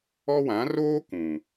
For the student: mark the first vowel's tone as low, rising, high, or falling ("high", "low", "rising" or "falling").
high